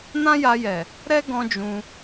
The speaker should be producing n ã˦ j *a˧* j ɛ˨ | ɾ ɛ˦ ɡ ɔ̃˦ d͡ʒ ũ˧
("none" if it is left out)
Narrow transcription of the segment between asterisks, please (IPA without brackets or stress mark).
a˧